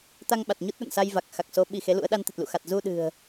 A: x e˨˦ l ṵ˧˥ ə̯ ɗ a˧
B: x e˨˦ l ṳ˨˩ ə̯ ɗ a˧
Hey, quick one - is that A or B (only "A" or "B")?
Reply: A